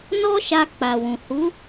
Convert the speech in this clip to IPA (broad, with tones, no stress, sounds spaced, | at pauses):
n ɔ˦ ʃ a˧ k͡p a˨ w ũ˨ h u˨˦